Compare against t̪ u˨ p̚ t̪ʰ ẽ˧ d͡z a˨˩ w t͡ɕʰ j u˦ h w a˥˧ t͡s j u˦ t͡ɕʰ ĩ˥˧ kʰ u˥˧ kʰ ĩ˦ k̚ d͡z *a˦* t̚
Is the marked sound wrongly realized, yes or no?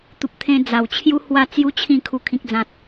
yes